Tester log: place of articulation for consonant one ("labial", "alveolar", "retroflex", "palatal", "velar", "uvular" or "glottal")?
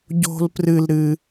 palatal